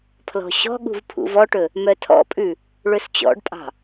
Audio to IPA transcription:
pʰlɔ̤ɕɔ̤ɠṳv pʰṵvɔʈɵ | mœtʰɔ̰pʼʉ | ɭɵst͡ɕɔ̰ɖpʼɑ̤

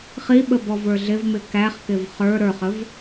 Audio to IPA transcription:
χiɓəbɔvə˞ ɮɪvmɪ kæχkɪv χə˞ ɾə˞χəv

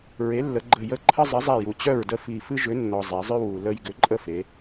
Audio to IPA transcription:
ɹe˩˥lːə˩˧ ɡ͡ǃə˧˩ jə˦ ǃʰə˦zˤɨ˩˥zˤe˧˩ ju˩t͡ɕœ˥˩ɹdə˥˩ fi˧˩ fɨ˦ʒʏ˩˥nːɔ˩ zˤe˩˧zˤʏ˦ wu˩ lə˦j ɡʏ˩˥ǃʼə˥˩fe˩˧

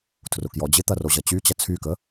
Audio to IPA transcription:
tʰrʊkjɔd͡ʑɪt̪ɐ roʑɐt͡ɕyt͡ɕɐ t͡sʰykə

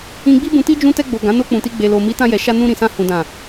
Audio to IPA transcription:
ĩ˧ɡ͡bi˦bũ˧ti˦ d͡ʒũ˧tɛ˧ɡ͡bo˨ ɡã˨˦no˧k͡pũ˨ti˧ ɡ͡be˨lo˨ mi˨˦tã˧jɛ˨ ʃa˧nũ˧ɾĩ˨sã˧ hũ˨dã˨

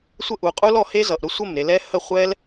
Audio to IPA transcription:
sʷə˦˨ʔu˨qʼu˦l ɔ˧ he˦zʌ˨ʔɾʊ˦sʷə˦˨m ɾe˨lɛ˧ hə˦˨χʷɛ˦l

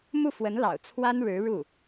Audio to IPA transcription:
mu˥˩fwə˧˥nlɑ̰˨˩ʊ̯ t͡sʰwa˥nɻɻ̩˧˥ ɻu˥˩

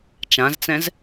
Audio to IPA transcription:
t͡ʃãzt͡sɛ̃z

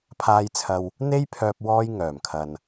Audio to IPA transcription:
pʰaː˧jt͡sʰɐ˧w | n̪e˥jpʰœː˧p̚ wɔː˧jŋœː˨˩mkʰɐ˨n

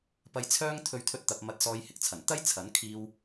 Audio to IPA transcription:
pɐ˧jt͡sʰœː˥ŋ t̪ʰɵ˧ɥt̪ʰɵ˧t̚t̪ɐ˨p̚ mɐ˧t̚sɔː˧jhɪ˨k̚t͡sʰɐ˨˩n t̪ɐ˥jt͡sʰɐ˨˥n kʰiː˧w

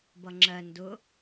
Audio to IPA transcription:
bʌŋ͡ǁɜ ndʊ

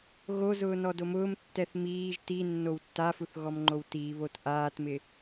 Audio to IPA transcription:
ɣozʊː nɔdomʊːmtːɛθ miːʒ ti nːowtːafuθ ɣɔmŋ͡ǃowtiːβot ʔaːtmɪ

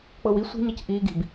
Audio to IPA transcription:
k͡pɤwi sʷi̤ ɲɤcʔiː ɡi̤b

